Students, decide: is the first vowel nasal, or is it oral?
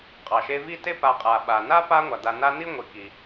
oral